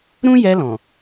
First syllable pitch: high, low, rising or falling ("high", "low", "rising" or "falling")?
high